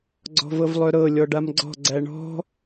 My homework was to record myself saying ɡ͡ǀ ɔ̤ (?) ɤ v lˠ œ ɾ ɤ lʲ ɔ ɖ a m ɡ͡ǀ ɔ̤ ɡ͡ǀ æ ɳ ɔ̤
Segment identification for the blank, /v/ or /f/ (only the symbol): v